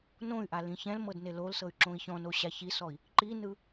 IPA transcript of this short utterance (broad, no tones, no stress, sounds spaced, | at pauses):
n õ y̯ ʔ a l ĩ ç ɛ̃ l m ɤ d n e l o l s ɤ y̯ ǁ õ i̯ ç ɔ̃ n o ɕ a ç i s ɔ i̯ | ǃ i n ɯ